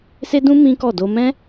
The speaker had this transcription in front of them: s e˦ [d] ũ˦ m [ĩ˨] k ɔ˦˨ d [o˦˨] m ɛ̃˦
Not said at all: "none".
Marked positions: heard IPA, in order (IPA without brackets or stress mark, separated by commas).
d, ĩ˦, o˧